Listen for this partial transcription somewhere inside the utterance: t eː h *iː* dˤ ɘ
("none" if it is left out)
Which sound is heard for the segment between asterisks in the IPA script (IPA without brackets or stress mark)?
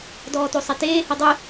i